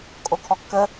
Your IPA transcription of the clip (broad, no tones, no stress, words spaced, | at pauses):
kʼokʰɔkːə